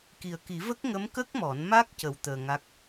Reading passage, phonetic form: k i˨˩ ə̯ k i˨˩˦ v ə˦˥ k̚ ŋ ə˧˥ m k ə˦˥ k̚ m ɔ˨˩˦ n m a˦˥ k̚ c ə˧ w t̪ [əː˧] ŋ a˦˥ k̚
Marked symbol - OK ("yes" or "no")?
yes